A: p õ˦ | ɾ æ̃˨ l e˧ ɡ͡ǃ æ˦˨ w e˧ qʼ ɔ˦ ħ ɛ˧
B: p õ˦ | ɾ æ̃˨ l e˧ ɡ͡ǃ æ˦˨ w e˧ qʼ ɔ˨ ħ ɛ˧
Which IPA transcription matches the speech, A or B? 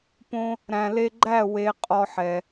A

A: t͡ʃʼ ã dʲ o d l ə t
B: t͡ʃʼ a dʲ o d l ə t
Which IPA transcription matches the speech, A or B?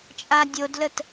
B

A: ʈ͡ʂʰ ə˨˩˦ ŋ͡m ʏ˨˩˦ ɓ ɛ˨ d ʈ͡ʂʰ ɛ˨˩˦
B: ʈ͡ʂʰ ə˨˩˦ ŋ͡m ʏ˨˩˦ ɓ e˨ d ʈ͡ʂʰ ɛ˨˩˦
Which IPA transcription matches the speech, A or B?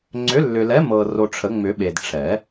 B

